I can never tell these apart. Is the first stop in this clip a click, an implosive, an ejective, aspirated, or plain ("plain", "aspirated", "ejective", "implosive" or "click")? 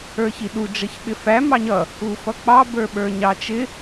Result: implosive